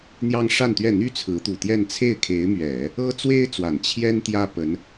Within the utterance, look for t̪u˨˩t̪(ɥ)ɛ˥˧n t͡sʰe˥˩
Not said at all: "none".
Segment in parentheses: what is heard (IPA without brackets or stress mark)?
j